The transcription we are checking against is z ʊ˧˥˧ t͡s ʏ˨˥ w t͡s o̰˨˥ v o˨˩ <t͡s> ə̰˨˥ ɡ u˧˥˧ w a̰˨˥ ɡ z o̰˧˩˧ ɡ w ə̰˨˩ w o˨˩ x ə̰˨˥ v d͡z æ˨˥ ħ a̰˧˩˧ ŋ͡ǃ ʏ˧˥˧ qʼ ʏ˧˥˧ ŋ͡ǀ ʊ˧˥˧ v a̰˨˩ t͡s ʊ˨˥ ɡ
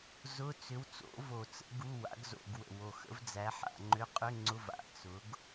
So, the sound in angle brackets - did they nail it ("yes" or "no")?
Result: yes